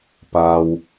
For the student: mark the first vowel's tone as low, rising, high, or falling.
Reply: low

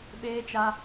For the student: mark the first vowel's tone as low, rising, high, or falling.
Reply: high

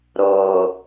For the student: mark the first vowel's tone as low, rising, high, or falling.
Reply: low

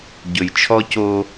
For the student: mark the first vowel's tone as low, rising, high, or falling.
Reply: low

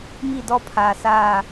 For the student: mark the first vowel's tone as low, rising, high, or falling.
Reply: falling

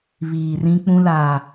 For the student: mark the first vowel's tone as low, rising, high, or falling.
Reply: low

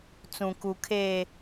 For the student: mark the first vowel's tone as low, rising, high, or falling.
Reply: low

